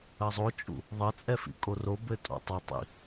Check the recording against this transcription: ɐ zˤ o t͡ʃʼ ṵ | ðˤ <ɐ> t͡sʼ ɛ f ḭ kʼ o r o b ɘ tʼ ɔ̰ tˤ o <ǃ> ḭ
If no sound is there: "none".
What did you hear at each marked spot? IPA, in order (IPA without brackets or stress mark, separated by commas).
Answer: ɐ, tˤ